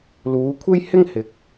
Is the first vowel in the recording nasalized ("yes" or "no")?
no